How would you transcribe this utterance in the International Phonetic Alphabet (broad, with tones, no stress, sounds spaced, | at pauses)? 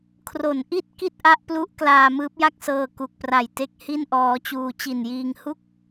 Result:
kʰ r o˩˦ n ʔ i˥˩ t̚ k i˥˩ t̚ ʔ a˦˥ ʔ p l u˦˥ ʔ k l aː˧ m ɯː˦˥ p̚ j a˥˩ k̚ s ɤː˧ k u˨˩ k̚ p r a˨˩ j t e˦˥ k̚ h i˥˩ n ʔ ɔː˦˥ t͡ɕ uː˧ t͡ɕ i˨˩ n j iː˧ ŋ h u˥˩ k̚